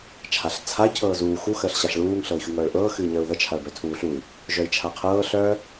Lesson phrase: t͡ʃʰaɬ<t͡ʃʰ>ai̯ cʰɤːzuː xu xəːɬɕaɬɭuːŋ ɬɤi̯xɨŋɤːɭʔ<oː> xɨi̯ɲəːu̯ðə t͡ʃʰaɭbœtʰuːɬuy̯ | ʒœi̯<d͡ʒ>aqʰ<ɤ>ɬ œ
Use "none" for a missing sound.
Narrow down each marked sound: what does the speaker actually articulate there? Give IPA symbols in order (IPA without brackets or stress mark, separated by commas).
t͡sʰ, ɤː, t͡ʃʰ, ɤː